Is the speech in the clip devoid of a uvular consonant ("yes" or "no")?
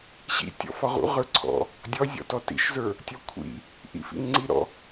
no